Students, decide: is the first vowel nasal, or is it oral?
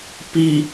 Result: oral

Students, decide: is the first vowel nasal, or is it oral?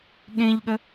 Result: nasal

